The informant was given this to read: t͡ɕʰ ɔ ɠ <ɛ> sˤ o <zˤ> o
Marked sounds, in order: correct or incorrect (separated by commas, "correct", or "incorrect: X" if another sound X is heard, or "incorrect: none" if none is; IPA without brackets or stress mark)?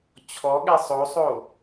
correct, incorrect: sˤ